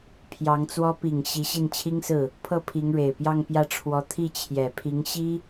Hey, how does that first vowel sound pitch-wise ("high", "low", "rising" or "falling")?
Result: rising